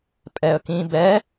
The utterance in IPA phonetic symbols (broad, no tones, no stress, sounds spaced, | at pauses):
pʼ ɛ ə̯ k ĩ b ɛ